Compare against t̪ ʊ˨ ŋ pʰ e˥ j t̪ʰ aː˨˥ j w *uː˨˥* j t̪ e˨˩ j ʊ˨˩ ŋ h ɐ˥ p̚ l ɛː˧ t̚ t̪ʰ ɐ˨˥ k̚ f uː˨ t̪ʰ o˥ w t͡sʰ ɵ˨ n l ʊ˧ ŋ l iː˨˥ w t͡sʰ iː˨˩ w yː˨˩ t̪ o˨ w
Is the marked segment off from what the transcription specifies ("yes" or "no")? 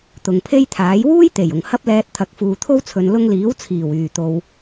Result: yes